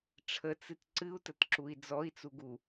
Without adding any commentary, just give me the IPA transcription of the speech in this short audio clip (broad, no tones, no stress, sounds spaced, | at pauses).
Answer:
ʈ͡ʂʰ ə t͡s ɨ t ǀ ɨ u̯ t ə t ǁ u i̯ d͡z ɔ i̯ t͡s u ɡ u